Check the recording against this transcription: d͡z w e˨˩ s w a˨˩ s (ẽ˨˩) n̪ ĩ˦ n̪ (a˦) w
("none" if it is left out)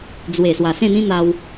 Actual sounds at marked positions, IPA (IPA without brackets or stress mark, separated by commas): ẽ˥˧, a˧